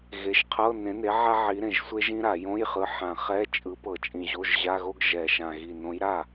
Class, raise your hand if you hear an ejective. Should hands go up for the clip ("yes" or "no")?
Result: yes